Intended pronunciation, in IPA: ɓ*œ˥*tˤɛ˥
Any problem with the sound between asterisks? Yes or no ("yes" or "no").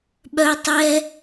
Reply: no